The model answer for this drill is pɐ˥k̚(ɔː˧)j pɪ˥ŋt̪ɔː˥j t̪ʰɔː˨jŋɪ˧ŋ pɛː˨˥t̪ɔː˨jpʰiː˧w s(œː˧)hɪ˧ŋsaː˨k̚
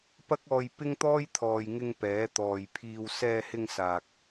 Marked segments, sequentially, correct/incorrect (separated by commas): correct, incorrect